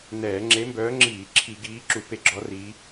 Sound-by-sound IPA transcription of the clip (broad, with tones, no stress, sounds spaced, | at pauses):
n ɛː˧˩˧ ŋ͡ǁ e˨˦ m b œː˨˦ ŋ͡ǁ iː˧˩˧ ǁʰ i˧˩˧ ɡ iː˨˦ ǁ u˧˩˧ p e˨˦ ɡ͡ǁ ɔ˨˦ r iː˨˦